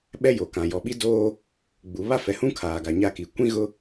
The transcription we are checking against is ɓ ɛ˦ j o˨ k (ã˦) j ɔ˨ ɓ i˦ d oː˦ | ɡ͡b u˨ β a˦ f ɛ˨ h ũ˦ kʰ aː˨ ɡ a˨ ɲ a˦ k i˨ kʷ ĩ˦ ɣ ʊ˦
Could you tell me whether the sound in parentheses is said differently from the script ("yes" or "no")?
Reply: yes